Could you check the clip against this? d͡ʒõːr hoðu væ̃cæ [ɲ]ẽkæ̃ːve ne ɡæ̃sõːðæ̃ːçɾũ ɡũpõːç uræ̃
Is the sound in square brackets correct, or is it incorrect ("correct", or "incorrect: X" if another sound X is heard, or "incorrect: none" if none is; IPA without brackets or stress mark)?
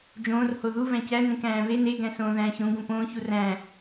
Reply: incorrect: n